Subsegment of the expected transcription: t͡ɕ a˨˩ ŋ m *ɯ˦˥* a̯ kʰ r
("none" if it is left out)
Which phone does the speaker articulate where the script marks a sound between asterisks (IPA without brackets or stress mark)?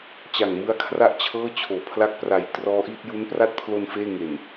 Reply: ɯ˦˥